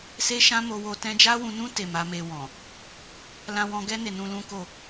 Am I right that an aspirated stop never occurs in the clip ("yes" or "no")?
yes